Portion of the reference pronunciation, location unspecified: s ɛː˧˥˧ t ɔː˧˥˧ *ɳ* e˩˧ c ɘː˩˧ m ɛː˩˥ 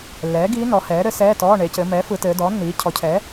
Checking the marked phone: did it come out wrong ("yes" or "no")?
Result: no